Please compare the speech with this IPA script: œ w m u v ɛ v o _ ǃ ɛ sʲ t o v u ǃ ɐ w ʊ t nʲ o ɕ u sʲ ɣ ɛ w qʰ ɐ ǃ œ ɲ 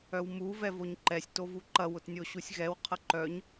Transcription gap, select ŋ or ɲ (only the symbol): ɲ